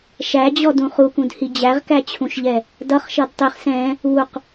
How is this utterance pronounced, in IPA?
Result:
ʃæd͡ʑɔdũ χukũdhi d͡ʑæʁkæt͡ɕʰũʃʎɛ | dʌχʃʌd tˤiχ sɛ̃ | uq

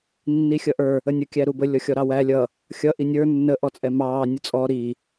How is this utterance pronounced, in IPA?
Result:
nːixʲʌʔə˞ | ənʲə kʲæɾubə lʲɔxʲɔɾɑwæ lʲʌ | xʲʌ ʔinʲə˞ nːə ʔɔt͡sʼɛmɑː nʲʊt͡sʼɔ ɾi

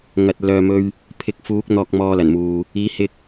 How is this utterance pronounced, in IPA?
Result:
ŋɐ˨t̚lœː˨mɵ˧ɥ | pʰɪ˧k̚fuː˨˥k̚ n̪ɔː˧k̚mɔː˧lɐ˨˩nmuː˨ | iː˨˥hɪ˧k̚

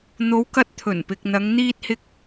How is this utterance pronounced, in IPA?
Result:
n̪o˨˧wkɐ˧t̚ t̪ʰɵ˨˩npɪ˨k̚n̪ɐ˨˧ŋ n̪iː˥t̚hɪ˥k̚

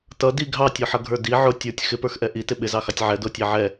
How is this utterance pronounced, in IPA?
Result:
tʌ di ɡʱɑtʲɔħʌɡʱə˞ di ʕʊ tʲə˞tʲ xɪpə˞xʔɛ ʔitɪ ɓɪzɑxɑtʲ ʕɛdʊːtʲæ ʕɛ

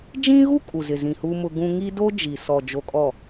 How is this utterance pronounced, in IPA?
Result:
d͡ʒĩ˦ɣu˦ kʼu˨zɪ˨zĩ˨ hu˦mʊ˦ ɡũ˦ ŋiː˦do˦ d͡ʒi˨ sɔ˨ d͡ʒo˨kʼɔ˨

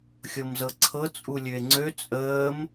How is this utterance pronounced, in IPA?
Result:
xʲɤmzɤǀʰɤ t͡sʼulʲøe̯ŋ͡ǀø t͡sʼəːm

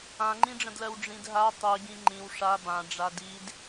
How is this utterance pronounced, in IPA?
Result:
ãŋ͡ǃĩɖ͡ʐə̃dlɜw ɖ͡ʐĩdɦa tˤiɡĩ ŋ͡ǃĩw ʂa bã ɖ͡ʐadid

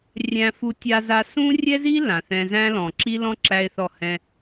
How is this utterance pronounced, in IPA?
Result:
rʲæ̃˦fu˦tʲa˦za˦ sũ˦rʲɛ˦zi˦ lã˨θɛ̃˦ zæ̃˦lɔ̃˨ ǁi˦lɔ̃˦ ǁæ˦ɪ̯θɔ˦˨hɛ̃˦

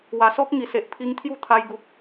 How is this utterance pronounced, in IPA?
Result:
wa˨˩sɔ˦k̚ ŋi˨˩se˨ʔpʰi˧ŋt̪ʰju˥˧ t̪ʰa˧jɡu˨k̚

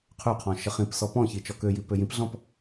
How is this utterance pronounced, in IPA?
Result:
qʰøqʰɔ̃ ʃəχĩpsɔ pɔ̃çi t͡ʃɔkøji pøjĩpɮɔ̃p

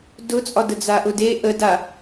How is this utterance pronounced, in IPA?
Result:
dʊt͡sʼɒdə d͡zaʔʊde ʔəda

